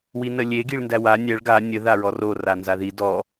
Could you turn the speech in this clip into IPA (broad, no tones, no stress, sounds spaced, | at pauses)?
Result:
w i n ə lʲ e ɡ i ɭ n d æ w a nʲ æ ɭ ɡ a nʲ ə ð a ɹ ɔ r o r a n z a ð i d ɔ